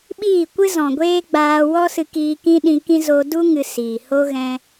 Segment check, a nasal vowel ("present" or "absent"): present